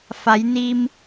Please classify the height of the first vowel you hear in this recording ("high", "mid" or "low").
low